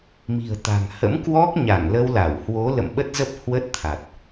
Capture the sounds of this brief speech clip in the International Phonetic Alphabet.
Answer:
m i̤˨˩ ə̯ t̪ a̤˨˩ ŋ h ə̰˧˥ m k w ɔ˦˥ k̚ ɲ a˧˩ ŋ l ə˧ w l a˧˩ w h w o˨˦ l ə̰˧˨ m ɓ ə˦˥ t̚ z ə˦˥ p̚ h w ə˦˥ t̚ t̪ʰ a˨˩ t̚

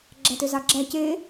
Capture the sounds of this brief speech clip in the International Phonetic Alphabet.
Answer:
ɡ͡ǁ æ t ø z ɑ ɡ͡ǁ æ c e

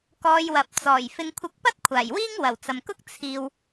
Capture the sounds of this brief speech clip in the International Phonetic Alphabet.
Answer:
k ɔː˧ j w ɐ˨ p̚ t͡s ɔː˨˩ j f ɪ˨ ŋ kʷʰ ɪ˨˥ k̚ p ɐ˥ t̚ kʷʰ aː˨˩ j w iː˥ ŋ w ɐ˨˩ w t͡s ɐ˨ m k ʊ˥ k̚ t͡sʰ iː˨ w

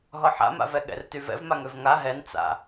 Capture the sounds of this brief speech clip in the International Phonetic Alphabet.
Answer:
ɦ ɔ ħ a̰ m a̰ v ɛ ɠ ɛ̰ r t y v ɛ̰ v m a ŋ ø v ŋ a ɦ ɛ n t͡s a̰

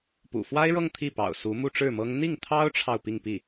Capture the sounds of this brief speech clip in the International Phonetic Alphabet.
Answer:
p ṵ˨˩ f w a˥ ɪ̯ ɻ ɤ˥˧ ŋ t̪ʰ i˥˩ p ɑ̰˨˩ ʊ̯ s u˧˥ m u˥˧ ʈ͡ʂ ɻ̩˥˩ m ɤ˥ ŋ n̪ i˥˩ ŋ t̪ʰ ɑ˥ ʊ̯ ʈ͡ʂʰ ɑ˨ ʊ̯ p i˥˧ ŋ p i˥˩

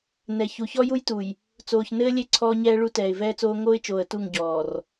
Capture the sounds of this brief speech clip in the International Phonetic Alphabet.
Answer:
n ɛ˨ ç u˨ ç ɔ˦ j u˦ j t u˨ j | t͡s oː˨ ç n ɘː˦ lʲ e˦ ǀʰ ɔː˦ ɲ ɛː˦ ɭ u˦ t ɛː˨ ɪ̯ v ɛː˦ t͡s oː˦ ŋ oː˦ ɪ̯ t͡ʃ oː˨ ə̯ t u˦˨ ŋ ɟ ɔː˨ r

